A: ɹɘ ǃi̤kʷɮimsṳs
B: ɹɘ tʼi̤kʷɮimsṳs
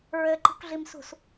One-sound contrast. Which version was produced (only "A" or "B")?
A